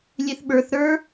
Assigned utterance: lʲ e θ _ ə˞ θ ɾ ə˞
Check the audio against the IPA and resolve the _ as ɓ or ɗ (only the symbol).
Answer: ɓ